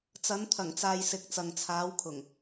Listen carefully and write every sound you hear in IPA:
t͡s ɐ˨˥ n t̪ʰ ɐ˨˩ ŋ t͡s aː˨ j s ɪ˨˥ k̚ t͡s ɐ˨ ŋ t͡sʰ aː˨˥ w kʰ ʊ˨˩ ŋ

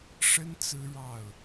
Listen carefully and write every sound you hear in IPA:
ʂ ə˥ n t͡s ɹ̩˥ ɻ ɑ˥˩ ʊ̯

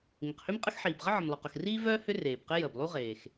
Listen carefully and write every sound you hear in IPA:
ŋ ɪ˩ q h ø˥ m qʼ ə˥ x ħ iː˩ b ʁ ə˥ ʕ ə˩ m lˠ ʏ˩ q ʊ˩ x r iː˥ v œː˥ h ʏ˥ r eː˩ b q ɪ˥ j əː˩ b lˠ u˥ ʁ eː˩ x

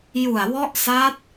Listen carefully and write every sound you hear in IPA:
j u˨˩ a̯ w ɔ˦˥ ʔ s a˦˥ t̚

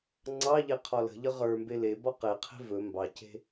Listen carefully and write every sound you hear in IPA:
ŋ͡ǀ ɑ ʎ e qʰ ɒ l ə̤ ʎ ə ʁ ə˞ m b e l e b ɒ q e qʰ e̤ v ɵ m b ɑ c e̤

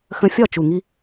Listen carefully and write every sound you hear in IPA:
x ə̃˧ fʲ ɒ˦˨ t͡ʃ u˨ ŋ i˧

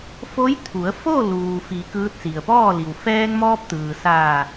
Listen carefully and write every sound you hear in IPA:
f o˧˥ j t̪ʰ u˩˧ ə̯ f o˥˨ l uː˩ f i˩˧ k ɯː˧˥ t̚ s i˩ ə̯ p ɔː˥˨ l i˩ w f ɛː˧ ŋ m ɔː˧ p̚ t̪ ɯː˩ s aː˧˩

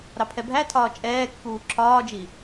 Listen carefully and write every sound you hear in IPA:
ɾ ɑ pʰ ɛ bʱ æ tʰ ɒː t͡ʃʼ ɛː kː uː ǁʰ ɒː d͡ʒ i

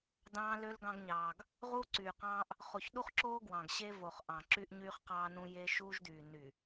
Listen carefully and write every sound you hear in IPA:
d ɑ̃ː˦ l ø˦ l ɡ ɑ̃˦ ɡ ɲ ɑː˨ ɡ | ʁ uː˦ ǀ yː˨ q ɑ̃ː˦ ʔ | χ o˨ ç ɗ u˦ χ ǁ oː˦ ɡ w ɑ̃˨ ɡ ɕ e˦ v o˨ χ ʔ ɑ̃˨ ǁ y˦ ʔ ɲ yː˦ χ q ɑː˦ n ũ˦ j e˦ ʃ uː˦ ʒ d yː˨ n y˨

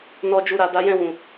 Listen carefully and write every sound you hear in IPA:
n ɔ˦ d͡ʒ u˦˨ ɾ a˨˦ d a˦ j ɛ̃˦˨ w ũ˨

